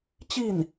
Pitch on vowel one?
falling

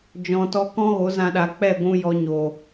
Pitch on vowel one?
low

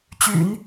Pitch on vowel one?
low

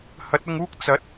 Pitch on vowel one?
rising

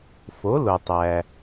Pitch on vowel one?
rising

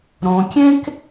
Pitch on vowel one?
low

